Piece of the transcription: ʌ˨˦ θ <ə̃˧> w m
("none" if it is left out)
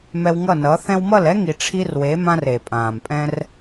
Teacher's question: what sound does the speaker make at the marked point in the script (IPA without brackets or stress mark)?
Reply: ɛ̃˧